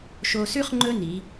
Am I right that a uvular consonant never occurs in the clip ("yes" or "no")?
no